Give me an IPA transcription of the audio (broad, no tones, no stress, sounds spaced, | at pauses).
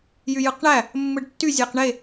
j y j ɯ q ɳ æ | mː ɯ ɖ tː y zʲ æ q ɳ e